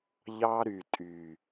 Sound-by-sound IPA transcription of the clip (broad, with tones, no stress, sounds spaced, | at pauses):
ʎ ɑ˦ ɾ y˨ tʼ y˨